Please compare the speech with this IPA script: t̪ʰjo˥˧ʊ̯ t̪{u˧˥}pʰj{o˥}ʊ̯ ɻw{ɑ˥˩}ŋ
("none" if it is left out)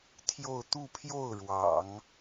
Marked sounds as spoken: u˥˧, o˥˩, ɑ̰˨˩˦

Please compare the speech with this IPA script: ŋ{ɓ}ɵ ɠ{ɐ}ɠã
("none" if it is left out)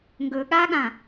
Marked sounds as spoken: ɡ, a

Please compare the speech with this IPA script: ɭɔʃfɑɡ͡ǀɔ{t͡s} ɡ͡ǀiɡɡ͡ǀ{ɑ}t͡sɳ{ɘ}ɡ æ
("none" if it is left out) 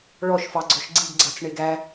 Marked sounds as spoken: ʃ, ɑ, e

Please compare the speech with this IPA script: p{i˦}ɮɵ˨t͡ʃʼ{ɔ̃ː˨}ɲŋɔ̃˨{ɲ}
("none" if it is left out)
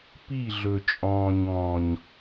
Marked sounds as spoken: i˦˨, ɔ̃ː˨, ɲ

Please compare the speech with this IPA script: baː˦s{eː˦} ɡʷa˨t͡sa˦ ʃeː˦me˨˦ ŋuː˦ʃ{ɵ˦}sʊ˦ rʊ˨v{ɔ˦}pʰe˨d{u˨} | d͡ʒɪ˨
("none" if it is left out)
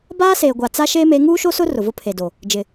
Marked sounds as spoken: eː˨, o˦, ʊ˦, o˨

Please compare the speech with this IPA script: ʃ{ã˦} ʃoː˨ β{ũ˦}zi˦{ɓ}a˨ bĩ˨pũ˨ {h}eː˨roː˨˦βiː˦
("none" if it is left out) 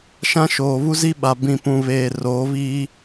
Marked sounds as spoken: ã˦, u˦, ɓ, β

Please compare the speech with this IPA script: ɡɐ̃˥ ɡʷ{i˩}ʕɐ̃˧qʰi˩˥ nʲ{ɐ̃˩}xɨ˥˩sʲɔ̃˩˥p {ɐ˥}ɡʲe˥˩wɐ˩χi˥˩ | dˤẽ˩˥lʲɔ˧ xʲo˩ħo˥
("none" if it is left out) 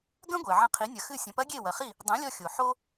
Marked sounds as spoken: e˩, ɐ˩, ɐ˥

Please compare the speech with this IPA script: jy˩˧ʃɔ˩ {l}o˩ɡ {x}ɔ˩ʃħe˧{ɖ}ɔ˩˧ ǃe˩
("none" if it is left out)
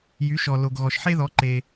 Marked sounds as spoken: l, ɣ, ð

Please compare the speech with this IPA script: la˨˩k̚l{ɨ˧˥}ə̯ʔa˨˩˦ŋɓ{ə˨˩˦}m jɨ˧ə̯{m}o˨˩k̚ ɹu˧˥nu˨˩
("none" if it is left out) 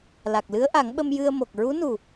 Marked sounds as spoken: ɨ˧˥, ə˧, m

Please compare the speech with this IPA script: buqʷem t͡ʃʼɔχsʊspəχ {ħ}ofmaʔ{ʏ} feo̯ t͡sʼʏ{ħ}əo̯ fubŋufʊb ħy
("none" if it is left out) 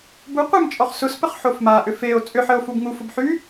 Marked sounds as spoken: ħ, ʏ, ħ

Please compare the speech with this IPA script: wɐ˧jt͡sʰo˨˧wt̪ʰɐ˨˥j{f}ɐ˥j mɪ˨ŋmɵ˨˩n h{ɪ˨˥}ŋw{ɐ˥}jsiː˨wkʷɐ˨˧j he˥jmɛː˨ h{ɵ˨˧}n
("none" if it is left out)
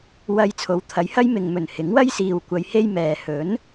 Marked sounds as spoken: h, ɪ˨˥, ɐ˥, ɵ˨˥

